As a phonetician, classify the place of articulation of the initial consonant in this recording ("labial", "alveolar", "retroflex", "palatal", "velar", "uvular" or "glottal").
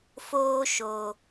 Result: labial